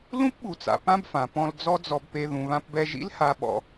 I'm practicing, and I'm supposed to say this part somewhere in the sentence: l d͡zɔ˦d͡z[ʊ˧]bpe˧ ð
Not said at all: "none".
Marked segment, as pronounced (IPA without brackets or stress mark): ɔ˧